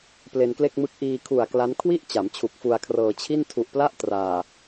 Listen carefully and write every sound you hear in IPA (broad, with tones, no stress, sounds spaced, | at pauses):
p l e˧ n k l e˥˩ k̚ m ɯ˥˩ k̚ ʔ iː˧ kʰ u˨˩ a̯ k l a˦˥ n kʰ w i˥˩ ʔ t͡ɕ a˩˦ m t͡ɕʰ u˨˩ k̚ f u˧ a̯ kʰ r ɤː˧ t͡ɕʰ i˥˩ n tʰ u˨˩ ʔ p l a˥˩ ʔ t r aː˨˩